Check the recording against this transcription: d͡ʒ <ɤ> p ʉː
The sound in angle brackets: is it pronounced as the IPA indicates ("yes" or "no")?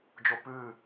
no